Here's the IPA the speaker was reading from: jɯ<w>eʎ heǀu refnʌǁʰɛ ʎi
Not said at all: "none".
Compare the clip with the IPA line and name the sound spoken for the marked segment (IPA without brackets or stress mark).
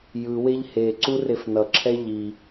w